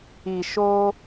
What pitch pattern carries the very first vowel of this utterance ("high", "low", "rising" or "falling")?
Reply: low